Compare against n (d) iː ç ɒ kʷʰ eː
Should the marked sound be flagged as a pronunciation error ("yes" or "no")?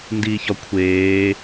no